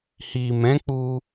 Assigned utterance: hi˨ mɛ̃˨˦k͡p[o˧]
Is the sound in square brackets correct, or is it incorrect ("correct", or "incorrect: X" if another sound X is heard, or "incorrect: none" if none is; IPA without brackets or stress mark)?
incorrect: u˧